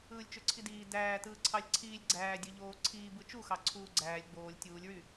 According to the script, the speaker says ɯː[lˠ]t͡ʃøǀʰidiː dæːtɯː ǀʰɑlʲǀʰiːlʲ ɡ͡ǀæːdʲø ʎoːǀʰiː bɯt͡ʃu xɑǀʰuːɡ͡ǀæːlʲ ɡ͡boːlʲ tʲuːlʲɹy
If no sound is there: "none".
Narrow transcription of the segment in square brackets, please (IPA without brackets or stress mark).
lʲ